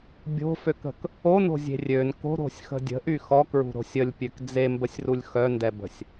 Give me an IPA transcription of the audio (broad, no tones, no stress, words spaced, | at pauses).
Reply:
bʲo̤føkə̤k | ono̤zʲe̤ rʲøn ko̤ɾo̤sʲxə̤ dʲə̤ʔy xɔkɹṳɾo̤ sʲəlʲpʲøk d͡zembəsʲrulʲ xœndɛbə̤sʲ